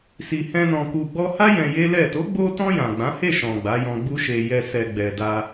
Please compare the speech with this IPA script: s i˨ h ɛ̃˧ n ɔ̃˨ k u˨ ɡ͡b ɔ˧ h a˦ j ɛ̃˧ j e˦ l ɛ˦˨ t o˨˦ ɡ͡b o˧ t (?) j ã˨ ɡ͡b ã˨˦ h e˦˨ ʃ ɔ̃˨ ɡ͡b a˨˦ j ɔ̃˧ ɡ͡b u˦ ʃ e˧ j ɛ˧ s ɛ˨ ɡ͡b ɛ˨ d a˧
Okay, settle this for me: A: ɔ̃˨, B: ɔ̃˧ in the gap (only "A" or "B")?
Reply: B